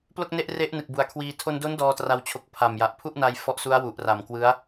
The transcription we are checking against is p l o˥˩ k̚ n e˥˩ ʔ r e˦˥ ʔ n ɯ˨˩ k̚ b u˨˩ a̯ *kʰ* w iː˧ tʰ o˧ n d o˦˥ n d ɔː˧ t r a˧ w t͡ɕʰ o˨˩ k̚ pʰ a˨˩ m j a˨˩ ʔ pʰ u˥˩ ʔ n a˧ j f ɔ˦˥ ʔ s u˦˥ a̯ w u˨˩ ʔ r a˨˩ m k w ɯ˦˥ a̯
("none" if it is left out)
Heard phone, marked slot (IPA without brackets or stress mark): kʰ